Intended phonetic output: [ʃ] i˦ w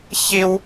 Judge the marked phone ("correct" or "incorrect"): incorrect